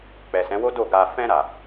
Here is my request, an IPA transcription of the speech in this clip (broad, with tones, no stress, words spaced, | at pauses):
k͡pɛ˨sɛ̃˨˦wo˦ do˦˨ɡa˧ fɛ̃˧ɾa˨